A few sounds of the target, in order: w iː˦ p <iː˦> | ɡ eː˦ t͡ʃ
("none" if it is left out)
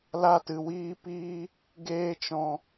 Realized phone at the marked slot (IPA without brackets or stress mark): iː˦